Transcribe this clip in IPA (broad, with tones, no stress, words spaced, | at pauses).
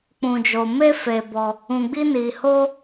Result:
k͡pũ˧d͡ʒo˧ me˦fe˧bɔ˧ | ũ˧ɡ͡bi˦ ni˧ho˦